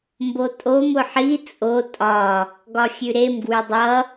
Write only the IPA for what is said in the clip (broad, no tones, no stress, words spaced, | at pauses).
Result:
mbotʼom ʊħi t͡sʼo tʼɒ | ɡɒxʲʉɾem ɡwʉdˤʌ